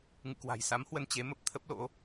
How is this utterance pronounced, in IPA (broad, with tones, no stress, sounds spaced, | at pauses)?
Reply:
ŋ ɨ̰˧˨ k w a̤˨˩ j s a˨˦ m h w ə˧ n t͡ɕ e˨˦ m ə˦˥ p̚ t̪ʰ ə˦˥ p̚ l o̰˧˥